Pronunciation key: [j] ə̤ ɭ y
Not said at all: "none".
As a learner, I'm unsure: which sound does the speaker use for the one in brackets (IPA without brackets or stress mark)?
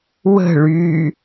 w